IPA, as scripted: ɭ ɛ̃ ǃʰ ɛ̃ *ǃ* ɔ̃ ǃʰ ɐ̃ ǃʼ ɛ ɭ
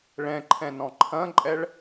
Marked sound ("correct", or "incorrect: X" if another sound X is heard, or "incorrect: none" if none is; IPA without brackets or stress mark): incorrect: n